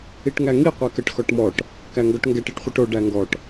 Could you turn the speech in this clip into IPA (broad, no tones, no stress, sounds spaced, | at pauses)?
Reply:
i ʈ ŋ æ ŋ i qʷ ɛ k ə ʈ x ɔ ʈ m ɔ ʈ | k æ ŋ ɡ ɔ ʈ ŋ ɡ ɛ ʈ i ʈ χʷ i ʈ o ɖ æ ŋ ɡ ɔ ʈ